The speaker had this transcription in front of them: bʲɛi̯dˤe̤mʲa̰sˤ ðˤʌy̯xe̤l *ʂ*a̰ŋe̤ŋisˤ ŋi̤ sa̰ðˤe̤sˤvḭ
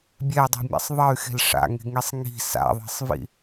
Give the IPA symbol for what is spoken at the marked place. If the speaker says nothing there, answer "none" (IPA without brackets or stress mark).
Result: ʂ